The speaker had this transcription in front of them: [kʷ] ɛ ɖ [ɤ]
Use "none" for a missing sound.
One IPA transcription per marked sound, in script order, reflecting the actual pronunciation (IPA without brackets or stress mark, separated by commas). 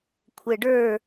kʷʰ, ə˞